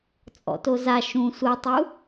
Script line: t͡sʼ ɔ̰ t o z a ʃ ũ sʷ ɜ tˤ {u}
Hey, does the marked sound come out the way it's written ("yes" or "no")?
yes